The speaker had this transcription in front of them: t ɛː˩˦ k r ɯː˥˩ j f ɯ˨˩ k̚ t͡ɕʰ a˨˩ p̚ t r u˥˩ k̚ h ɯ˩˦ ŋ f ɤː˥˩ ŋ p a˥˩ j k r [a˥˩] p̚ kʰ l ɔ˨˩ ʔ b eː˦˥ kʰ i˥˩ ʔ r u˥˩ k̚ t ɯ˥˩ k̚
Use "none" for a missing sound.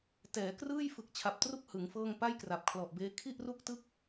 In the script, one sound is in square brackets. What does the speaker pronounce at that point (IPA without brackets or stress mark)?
a˨˩